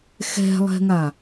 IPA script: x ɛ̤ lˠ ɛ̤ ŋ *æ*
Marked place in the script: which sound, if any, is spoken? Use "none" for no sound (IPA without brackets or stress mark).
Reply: a